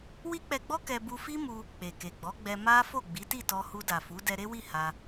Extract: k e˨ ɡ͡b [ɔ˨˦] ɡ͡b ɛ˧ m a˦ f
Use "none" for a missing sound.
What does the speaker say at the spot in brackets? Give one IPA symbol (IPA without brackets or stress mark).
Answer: ɔ˨˦